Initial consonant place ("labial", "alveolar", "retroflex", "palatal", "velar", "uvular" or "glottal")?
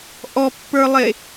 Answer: glottal